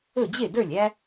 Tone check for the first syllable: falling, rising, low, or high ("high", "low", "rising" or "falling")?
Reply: falling